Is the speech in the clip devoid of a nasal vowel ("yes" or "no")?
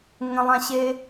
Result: no